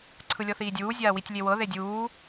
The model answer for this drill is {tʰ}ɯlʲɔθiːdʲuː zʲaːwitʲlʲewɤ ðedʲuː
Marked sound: incorrect: ǀʰ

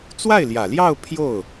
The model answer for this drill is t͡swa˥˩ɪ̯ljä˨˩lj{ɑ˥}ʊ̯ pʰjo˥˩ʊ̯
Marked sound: incorrect: ɑ˥˧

